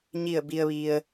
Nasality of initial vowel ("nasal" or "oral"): oral